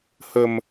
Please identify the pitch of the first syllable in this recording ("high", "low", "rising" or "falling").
low